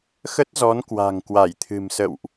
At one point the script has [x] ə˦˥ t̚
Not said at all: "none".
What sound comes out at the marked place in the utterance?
x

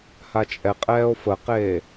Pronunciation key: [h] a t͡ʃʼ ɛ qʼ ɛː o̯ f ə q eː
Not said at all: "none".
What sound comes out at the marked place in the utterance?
h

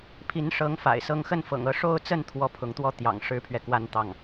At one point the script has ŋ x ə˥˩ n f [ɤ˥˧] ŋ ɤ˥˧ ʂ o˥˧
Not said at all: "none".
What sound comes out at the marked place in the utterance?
ɤ̰˨˩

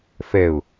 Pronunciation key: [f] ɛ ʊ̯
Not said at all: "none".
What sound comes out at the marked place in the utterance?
f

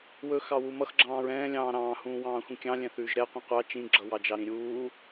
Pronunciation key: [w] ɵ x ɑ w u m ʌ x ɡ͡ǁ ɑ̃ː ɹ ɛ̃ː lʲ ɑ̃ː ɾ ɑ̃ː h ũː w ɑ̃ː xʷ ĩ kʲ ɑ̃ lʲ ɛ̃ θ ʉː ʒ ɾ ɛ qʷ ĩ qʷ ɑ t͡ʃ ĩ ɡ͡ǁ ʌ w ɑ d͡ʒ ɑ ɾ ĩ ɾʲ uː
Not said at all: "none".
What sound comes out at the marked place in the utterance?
w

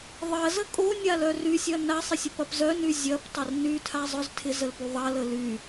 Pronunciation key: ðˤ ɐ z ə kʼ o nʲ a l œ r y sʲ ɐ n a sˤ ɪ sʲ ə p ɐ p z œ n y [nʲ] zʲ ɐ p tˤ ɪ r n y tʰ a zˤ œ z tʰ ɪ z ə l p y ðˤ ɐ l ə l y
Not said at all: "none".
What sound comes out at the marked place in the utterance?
none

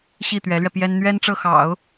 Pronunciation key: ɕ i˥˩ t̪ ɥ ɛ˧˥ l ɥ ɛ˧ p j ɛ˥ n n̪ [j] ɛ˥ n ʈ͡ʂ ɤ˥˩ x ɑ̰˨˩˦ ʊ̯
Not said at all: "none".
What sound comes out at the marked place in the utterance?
ɥ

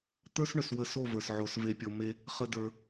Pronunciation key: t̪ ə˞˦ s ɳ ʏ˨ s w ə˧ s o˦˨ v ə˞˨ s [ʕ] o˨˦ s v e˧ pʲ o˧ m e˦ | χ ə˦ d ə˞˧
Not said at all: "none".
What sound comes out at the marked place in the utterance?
ʕ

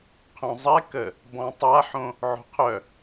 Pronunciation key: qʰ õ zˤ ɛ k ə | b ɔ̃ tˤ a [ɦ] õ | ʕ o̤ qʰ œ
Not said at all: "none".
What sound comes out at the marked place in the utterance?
ħ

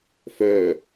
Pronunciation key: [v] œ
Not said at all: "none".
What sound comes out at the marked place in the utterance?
f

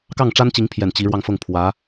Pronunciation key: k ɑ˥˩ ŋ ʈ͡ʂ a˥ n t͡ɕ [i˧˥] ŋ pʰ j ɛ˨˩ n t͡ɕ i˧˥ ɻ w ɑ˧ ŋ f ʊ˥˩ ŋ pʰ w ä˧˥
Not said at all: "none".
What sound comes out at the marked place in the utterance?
i˧˥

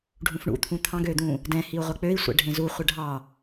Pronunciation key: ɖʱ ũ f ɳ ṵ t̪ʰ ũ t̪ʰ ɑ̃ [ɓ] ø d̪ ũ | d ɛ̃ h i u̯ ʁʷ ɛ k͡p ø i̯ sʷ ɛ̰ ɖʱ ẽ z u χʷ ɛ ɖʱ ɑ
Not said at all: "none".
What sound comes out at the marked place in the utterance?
ɡ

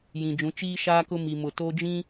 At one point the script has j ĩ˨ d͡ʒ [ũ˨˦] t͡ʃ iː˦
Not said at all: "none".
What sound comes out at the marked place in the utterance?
ũ˨˦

